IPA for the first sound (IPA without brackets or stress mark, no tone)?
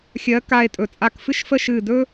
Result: xʲ